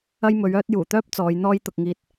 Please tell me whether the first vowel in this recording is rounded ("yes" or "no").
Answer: no